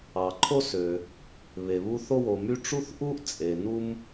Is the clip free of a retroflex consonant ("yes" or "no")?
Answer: no